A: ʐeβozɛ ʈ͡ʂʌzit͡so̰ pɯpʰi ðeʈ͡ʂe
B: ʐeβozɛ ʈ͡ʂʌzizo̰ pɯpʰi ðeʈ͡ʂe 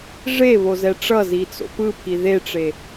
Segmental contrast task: A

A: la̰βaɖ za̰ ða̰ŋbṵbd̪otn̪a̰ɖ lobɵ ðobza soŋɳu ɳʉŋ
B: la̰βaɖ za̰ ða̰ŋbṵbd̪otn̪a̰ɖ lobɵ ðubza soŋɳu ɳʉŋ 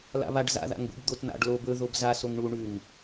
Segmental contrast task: A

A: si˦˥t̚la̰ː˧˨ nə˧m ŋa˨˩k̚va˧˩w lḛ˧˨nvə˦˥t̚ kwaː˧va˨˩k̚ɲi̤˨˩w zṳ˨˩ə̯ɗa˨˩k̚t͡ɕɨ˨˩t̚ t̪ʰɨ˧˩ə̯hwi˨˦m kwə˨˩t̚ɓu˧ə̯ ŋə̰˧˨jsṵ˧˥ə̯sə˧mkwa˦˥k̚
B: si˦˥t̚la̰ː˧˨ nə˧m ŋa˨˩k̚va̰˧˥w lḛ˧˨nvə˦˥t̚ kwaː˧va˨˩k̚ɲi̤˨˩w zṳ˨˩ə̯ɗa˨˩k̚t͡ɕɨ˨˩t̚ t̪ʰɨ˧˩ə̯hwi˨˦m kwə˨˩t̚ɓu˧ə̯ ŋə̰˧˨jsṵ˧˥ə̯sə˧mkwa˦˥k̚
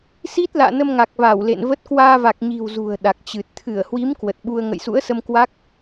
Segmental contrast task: A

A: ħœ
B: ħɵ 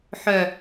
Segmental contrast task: A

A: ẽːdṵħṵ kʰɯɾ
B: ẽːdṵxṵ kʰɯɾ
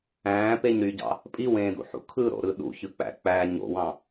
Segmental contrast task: A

